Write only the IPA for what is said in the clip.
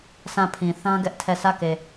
s ã˦˨ pʰ ĩ˨ θ ã˦ ɡ ɛ˦ ʔ tʰ ɛ˦˨ sʰ ä˦˨ k e˨

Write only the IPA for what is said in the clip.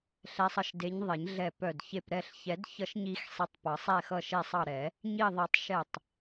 ɬ ɛ˨˦ sˤ ʌ˧˩ ʃ d e˨˦ ɲ ðˤ e˨˩˦ ɲ ɮ ɛ˧˩ p œ˧˩ d ç e˧˩ p ɾ ɛ˧˩ ɬ ç ɛ˨˩˦ d ç ʌ˨˩˦ ʃ ɲ i˨˩˦ x sˤ i˨˦ tˤ p ʌ˨˩˦ sˤ ɛ˧˩ x ʌ˧˩ ʃ e˧˩ sˤ ɑ˧˩ ɾ ɛ˨˩˦ | ɲ i˧˩ ðˤ i˨˩˦ tˤ ʃ ɛ˧˩ tˤ

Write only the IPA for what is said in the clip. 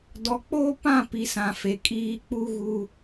d ɔ˨ k͡p oː˦ p ã˦˨ p i˨ s ã˨ f e˨ kʼ iː˦ k͡p u˦ ɣ u˦

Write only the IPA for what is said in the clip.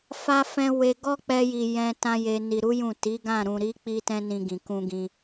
f a˧ f ɛ̃˧ w e˧ ɡ ɔ˦ k͡p ɛ˧ j i˨ j ɛ̃˧ t ã˧ j e˨ n i˨ ɾ u˨˦ j ũ˦˨ t i˨˦ ɡ ã˦˨ ɾ ũ˨ ɾ i˨˦ k͡p i˦ t ɛ̃˦ n ĩ˧ ɡ ĩ˨ k ũ˧ ɡ ĩ˧

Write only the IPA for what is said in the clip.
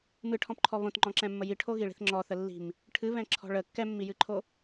m ɨ ʈʰ ɔ̃ p ǃʰ ɔ β õ t ŋ͡ǃ ɔ̃ ǁ ɛ̃ mː ə j i ʈʰ o ɣ i ɭ i̤ θ ŋ͡ǁ ɔ θ ə lː i̤ m | ʈʰ ɨ β ɛ̃ ǁʰ ɔ̤ ɭ ə kː ɛ mː i j ɨ ǃʰ o

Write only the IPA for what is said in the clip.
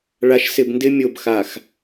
ɭ a˨ ʃ s ɪ˨ b n d ɪ˦ mʲ o˨ b x a˨ x

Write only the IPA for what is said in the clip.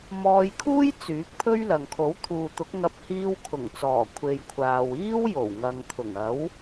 m ɔː˧ j kʰ uː˥ j t͡s yː˨˥ k̚ pʰ ɵ˥ ɥ l ɐ˨ ŋ kʰ o˨˥ w t̪ʰ uː˨ t̪ ʊ˨˥ k̚ ŋ ɐ˧ p̚ h iː˧ w kʰ ʊ˨˩ ŋ t͡s ɔː˨˩ kʷʰ e˨ j kʷʰ aː˨ w iː˥ w j o˨˩ w ŋ ɐ˨ ŋ t̪ʰ ʊ˨˩ ŋ ɐ˨˥ w

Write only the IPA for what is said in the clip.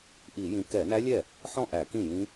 ʔ i˧˩˧ j ĩ˨˦ k ɛ˧˩˧ n æ˦˥ lʲ ɛ˥˩ | ħ ɔ̃˥˩ ʔ æ˧˩˧ k ĩ˥˩ j ĩ˦˥

